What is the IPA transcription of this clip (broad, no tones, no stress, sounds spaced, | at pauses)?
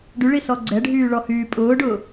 ɖ y ɭ i s ɔ ɡ͡ǀ ɛ ɖʱ yː ɭ ɔ h yː pʼ ʊː ɖ ʊː